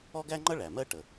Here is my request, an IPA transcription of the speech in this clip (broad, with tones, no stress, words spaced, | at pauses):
ɔ˥ɡæ˥ŋ͡ǃʌ˥ ɭæ˩mɜ˥ ʈə˩